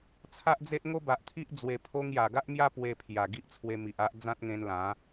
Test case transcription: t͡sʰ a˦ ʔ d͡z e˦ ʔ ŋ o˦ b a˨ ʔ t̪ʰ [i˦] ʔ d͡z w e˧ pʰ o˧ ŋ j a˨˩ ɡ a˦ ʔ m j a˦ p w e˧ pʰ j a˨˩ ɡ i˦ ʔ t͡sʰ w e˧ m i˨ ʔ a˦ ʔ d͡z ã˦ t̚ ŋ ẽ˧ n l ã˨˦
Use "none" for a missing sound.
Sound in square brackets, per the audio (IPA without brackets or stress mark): i˦